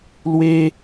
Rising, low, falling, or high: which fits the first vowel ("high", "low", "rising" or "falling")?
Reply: high